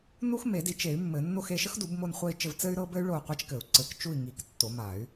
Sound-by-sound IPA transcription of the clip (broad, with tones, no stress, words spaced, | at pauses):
nu˥xme˨˩˦di˨˩˦t͡ʃe˨˩˦y̯ mːɘ˨˩˦ nːo˥˧xe˥˧ ʃə˥xdu˨˩˦b mo˥˧nχʷɘ˥˧i̯t͡ʃɘ˥˧v t͡sɘ˥y̯ɾɤ˥bɘ˥y̯ ɭo˥˧qʷa˥t͡ʃkɘ˨˩˦u̯ ǀɘ˨˩˦k t͡ʃu˥˧i̯ŋi˨˩˦k tːo˨˩˦ma˨˩˦y̯